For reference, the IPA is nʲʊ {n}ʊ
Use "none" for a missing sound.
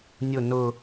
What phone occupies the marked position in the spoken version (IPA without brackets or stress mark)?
n